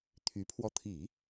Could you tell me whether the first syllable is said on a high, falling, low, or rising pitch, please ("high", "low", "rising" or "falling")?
rising